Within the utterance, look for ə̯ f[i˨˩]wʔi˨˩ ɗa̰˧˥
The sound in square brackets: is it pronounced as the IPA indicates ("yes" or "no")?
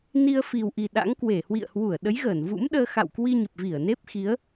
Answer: yes